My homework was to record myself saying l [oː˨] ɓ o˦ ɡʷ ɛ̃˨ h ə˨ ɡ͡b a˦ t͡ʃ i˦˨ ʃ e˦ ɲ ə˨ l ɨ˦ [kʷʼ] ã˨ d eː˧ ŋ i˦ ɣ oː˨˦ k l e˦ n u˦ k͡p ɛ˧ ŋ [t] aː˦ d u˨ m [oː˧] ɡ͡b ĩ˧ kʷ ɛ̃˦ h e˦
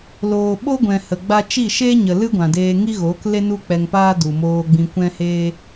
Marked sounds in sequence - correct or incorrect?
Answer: correct, incorrect, incorrect, correct

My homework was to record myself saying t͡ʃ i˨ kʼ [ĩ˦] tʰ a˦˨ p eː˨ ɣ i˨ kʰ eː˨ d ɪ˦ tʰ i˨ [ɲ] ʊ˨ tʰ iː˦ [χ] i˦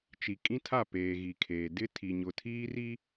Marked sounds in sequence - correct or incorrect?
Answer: correct, correct, incorrect

